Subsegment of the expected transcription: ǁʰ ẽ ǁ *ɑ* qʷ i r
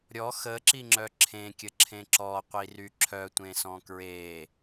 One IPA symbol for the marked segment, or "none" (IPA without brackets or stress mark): ɔ